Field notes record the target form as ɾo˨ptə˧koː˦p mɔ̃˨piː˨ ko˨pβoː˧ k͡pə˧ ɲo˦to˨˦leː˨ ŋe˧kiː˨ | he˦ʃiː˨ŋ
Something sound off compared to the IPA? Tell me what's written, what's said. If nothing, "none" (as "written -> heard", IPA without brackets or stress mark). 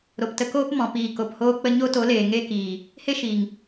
β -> h